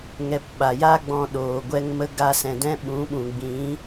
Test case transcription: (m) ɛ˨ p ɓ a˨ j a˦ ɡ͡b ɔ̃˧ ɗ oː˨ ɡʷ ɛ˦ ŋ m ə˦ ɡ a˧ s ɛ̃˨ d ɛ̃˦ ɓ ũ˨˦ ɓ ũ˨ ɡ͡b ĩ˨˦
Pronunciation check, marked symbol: incorrect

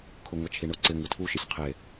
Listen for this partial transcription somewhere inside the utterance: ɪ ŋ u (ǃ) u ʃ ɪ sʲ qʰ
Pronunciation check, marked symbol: incorrect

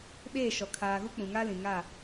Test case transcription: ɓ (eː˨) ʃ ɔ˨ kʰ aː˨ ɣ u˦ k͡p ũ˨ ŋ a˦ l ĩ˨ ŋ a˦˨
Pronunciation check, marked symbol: incorrect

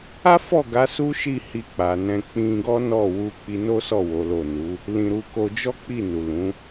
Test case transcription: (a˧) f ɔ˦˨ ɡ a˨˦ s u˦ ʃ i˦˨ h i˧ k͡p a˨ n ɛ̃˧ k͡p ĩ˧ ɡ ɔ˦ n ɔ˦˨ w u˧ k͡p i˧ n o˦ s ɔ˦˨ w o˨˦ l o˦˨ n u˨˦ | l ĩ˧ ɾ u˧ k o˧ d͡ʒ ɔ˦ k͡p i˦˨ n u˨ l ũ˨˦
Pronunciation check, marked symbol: incorrect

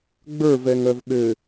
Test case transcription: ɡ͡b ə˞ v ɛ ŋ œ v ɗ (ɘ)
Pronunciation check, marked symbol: correct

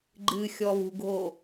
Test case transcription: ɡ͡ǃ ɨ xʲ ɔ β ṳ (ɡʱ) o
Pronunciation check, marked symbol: correct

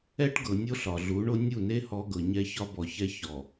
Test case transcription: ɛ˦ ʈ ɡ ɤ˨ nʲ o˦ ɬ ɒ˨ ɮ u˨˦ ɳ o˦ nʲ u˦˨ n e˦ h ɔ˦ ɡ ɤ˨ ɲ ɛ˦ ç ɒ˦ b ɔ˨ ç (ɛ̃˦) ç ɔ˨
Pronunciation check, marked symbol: incorrect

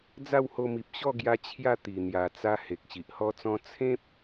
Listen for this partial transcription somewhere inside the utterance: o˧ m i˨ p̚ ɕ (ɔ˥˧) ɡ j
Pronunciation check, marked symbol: correct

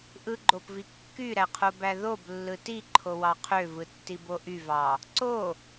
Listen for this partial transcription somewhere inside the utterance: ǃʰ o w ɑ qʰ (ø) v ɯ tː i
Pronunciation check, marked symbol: correct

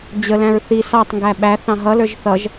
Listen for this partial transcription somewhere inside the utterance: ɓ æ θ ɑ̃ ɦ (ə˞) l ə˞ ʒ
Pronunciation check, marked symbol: incorrect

